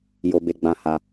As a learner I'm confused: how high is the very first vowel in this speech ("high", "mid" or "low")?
mid